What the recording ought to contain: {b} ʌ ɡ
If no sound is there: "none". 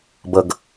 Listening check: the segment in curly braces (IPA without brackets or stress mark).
b